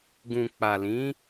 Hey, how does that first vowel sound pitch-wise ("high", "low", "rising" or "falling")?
low